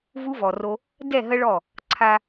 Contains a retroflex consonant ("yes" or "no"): yes